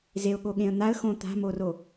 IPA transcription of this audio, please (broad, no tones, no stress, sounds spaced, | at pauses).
z e ʊ̯ ɠ o ɠ ẽ ə̯ n̪ a ə̯ x õ t̪ a̤ m o r o